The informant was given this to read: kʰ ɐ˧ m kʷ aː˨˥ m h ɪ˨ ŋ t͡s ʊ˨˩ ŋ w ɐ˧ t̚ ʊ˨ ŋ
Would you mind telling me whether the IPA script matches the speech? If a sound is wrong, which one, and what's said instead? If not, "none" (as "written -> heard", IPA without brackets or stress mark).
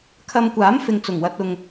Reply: h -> f